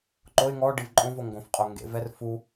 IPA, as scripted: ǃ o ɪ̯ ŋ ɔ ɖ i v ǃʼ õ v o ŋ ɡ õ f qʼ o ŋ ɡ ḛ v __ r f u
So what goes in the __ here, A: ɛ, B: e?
A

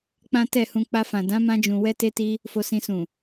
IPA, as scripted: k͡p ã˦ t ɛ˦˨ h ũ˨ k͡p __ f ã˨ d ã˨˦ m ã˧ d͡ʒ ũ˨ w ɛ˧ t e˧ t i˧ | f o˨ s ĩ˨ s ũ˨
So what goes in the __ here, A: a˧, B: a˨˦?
A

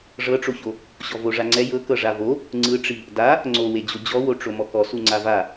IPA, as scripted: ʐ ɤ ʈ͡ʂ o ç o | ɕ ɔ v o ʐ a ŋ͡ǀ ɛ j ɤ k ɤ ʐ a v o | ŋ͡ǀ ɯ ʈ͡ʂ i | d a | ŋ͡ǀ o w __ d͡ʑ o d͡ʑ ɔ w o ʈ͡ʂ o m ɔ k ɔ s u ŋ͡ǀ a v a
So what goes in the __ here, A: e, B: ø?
A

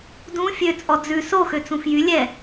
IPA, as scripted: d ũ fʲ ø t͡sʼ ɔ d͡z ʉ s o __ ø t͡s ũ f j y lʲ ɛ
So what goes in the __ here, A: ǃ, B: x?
B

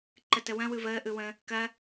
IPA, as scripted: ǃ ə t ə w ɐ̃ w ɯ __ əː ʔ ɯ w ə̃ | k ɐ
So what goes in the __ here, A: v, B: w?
A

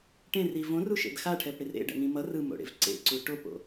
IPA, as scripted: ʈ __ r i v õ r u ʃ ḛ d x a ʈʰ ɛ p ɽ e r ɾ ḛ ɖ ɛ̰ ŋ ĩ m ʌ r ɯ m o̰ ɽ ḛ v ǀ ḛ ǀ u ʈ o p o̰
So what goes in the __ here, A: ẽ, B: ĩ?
A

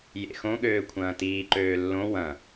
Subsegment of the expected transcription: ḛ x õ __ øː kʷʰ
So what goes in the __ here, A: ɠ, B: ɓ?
A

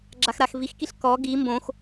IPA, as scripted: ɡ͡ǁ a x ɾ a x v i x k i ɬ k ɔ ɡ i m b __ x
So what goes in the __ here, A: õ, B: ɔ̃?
A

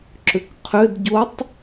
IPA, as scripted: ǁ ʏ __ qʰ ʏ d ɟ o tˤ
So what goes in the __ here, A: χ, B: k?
B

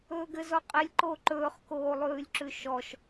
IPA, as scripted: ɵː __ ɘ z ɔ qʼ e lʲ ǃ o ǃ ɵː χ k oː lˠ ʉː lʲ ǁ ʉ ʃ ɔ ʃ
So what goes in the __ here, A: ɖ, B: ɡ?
B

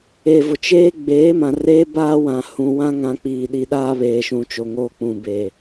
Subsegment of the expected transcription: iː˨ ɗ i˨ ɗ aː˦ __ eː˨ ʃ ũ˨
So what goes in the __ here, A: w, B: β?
B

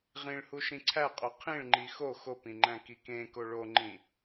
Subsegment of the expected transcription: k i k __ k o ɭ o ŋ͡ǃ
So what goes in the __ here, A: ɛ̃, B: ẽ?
B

